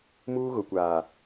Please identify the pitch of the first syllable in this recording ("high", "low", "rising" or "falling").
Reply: high